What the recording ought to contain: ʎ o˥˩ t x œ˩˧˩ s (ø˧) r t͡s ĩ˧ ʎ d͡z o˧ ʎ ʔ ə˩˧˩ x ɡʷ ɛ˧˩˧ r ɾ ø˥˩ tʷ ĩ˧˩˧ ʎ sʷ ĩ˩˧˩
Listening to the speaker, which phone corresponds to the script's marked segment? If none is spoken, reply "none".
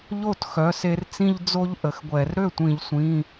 e˧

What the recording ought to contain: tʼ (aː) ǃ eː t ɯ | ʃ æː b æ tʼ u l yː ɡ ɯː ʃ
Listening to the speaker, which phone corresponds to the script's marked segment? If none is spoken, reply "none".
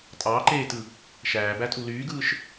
ɑː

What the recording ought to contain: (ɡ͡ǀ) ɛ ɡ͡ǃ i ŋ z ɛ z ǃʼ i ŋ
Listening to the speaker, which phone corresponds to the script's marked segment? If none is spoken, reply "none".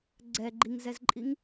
ɡ͡ǀ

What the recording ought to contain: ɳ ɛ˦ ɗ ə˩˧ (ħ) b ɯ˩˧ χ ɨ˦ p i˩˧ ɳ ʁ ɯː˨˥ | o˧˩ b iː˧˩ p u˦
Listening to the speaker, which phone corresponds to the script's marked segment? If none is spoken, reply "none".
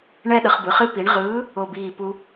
χ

